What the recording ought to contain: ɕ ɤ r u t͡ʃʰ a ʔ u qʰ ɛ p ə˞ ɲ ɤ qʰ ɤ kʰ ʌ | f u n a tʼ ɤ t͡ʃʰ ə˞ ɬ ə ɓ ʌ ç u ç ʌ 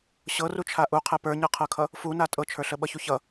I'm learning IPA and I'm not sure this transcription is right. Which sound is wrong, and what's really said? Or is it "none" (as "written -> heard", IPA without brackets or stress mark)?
none